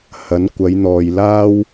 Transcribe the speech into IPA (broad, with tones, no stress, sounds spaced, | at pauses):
h ɐ˨˥ n kʷ ɐ˨˧ j n̪ ɔː˨ j l aː˥ w